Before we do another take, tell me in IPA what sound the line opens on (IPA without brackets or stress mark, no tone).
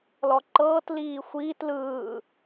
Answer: l